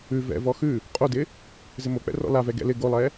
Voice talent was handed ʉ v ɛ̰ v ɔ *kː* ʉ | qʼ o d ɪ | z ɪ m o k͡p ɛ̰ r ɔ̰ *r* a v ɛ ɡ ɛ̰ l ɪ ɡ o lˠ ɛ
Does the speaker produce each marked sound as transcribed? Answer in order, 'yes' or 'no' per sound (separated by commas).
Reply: no, no